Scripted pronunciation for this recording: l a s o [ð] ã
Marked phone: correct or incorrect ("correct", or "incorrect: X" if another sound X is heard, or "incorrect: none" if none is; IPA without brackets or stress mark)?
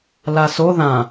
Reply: correct